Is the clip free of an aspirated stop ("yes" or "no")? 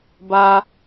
yes